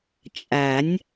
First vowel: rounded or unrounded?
unrounded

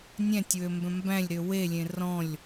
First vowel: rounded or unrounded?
unrounded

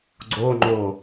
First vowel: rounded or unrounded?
rounded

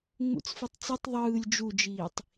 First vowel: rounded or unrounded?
rounded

